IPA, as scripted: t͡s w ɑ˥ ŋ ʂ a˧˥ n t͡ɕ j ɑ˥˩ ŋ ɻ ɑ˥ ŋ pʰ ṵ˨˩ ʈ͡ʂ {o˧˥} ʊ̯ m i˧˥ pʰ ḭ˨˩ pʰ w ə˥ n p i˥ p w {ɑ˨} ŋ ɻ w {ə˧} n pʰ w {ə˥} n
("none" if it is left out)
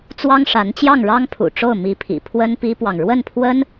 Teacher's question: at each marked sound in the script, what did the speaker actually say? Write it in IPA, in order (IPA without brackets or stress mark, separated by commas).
o˥˩, ɑ˨, ə˥˩, ə˥